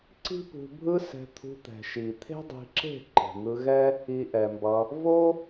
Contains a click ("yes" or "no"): yes